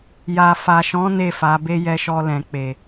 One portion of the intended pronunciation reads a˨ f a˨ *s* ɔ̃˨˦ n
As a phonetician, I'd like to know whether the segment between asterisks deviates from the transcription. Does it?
yes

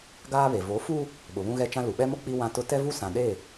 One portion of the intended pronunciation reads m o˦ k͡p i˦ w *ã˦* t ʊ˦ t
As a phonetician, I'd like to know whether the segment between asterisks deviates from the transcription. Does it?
no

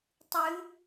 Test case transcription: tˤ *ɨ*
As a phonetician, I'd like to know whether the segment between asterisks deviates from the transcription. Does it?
no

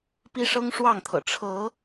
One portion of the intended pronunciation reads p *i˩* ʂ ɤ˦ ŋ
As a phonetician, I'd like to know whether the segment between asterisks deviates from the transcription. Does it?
yes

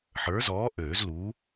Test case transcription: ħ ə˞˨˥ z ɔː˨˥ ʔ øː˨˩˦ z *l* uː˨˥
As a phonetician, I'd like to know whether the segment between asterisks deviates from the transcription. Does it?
no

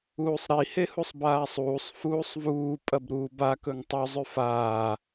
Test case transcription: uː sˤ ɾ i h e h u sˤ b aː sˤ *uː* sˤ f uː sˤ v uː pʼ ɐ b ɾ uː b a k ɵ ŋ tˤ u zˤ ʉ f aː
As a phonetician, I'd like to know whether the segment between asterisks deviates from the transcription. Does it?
no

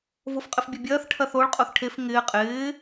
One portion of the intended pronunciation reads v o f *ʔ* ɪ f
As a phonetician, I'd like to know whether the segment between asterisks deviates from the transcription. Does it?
yes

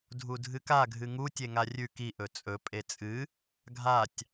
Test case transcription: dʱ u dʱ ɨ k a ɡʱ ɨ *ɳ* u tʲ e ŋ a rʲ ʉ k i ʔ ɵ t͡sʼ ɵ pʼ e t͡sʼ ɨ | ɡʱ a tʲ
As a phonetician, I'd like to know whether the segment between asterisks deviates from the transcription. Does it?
yes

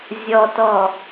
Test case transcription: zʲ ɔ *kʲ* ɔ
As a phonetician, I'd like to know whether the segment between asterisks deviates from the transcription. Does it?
yes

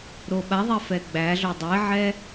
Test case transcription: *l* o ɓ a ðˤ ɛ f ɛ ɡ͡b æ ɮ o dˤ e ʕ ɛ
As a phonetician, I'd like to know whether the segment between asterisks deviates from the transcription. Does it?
yes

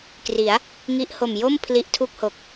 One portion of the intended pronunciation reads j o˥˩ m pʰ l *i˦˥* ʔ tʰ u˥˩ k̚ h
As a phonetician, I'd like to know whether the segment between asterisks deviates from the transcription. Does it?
no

